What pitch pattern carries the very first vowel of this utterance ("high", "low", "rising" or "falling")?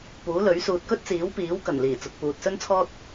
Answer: rising